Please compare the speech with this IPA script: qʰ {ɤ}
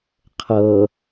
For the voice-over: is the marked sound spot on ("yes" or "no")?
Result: yes